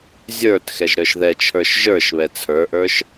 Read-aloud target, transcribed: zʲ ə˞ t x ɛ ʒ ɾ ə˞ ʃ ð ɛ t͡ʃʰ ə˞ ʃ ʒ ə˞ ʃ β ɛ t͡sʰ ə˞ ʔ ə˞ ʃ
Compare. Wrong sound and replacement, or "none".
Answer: none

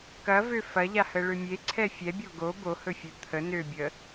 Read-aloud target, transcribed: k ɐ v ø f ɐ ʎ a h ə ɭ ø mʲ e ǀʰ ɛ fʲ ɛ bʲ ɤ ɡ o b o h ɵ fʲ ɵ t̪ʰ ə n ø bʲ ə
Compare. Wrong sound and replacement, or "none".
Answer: ɤ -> o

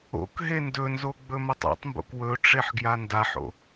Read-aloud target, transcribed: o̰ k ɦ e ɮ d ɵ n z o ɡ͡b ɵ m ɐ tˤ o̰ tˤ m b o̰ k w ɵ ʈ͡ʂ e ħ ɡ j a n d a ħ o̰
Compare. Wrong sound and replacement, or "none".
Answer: ɮ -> n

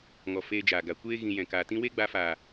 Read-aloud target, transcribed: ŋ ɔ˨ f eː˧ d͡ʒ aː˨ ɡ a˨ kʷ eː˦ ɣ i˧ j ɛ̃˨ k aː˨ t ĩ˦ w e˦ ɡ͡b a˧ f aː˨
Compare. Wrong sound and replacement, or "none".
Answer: i˧ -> ĩ˧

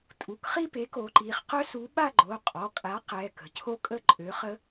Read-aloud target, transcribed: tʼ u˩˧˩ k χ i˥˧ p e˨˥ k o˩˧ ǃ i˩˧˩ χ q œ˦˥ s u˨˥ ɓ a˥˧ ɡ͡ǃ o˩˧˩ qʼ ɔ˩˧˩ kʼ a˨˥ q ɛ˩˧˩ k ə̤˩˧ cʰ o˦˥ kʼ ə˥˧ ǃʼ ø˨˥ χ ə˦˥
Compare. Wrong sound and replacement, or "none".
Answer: none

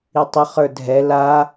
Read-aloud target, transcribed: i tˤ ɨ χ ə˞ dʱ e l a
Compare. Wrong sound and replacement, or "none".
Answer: e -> ɛ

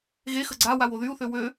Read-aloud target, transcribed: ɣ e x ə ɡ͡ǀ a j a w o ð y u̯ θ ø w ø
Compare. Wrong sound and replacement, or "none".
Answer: j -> w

